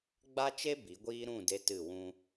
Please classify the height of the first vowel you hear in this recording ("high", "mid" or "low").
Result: low